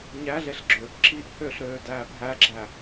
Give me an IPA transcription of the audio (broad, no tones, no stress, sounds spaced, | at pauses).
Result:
ɲ æ ɮ e ɬ ɡ͡ǁ øː p ǁ i ʔ h ø ɬ ɾ øː d æː p ɦ æ ɡ͡ǁ æ